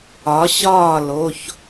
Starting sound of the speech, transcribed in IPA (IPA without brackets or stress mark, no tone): ɒ